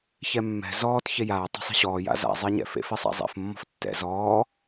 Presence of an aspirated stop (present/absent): absent